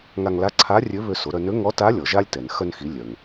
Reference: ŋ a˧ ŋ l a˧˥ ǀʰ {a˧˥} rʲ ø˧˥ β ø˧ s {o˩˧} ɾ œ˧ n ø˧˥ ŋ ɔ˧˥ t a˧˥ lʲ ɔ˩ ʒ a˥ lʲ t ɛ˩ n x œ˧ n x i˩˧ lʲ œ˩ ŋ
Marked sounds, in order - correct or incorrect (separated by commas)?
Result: correct, correct